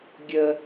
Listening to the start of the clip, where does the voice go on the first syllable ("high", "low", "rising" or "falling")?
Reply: high